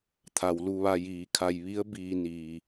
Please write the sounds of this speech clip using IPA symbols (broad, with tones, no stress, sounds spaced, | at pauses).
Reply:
t̪ʰ a˩ w l u˧ ʋ a˧ j iː˩˧ kʰ a˧ j ʋ i˧˥ ə̯ b iː˧ n iː˩